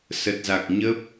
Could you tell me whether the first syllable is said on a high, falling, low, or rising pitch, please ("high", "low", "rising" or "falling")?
low